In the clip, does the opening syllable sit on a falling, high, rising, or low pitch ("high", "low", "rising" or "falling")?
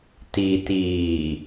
low